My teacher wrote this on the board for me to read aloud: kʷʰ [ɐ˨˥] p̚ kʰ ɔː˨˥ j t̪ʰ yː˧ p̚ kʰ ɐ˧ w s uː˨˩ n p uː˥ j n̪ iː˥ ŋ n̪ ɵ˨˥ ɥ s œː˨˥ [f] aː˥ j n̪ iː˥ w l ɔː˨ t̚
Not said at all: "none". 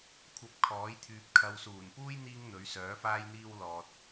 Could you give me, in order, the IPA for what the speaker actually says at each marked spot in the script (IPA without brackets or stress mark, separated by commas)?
ɐ˨˥, f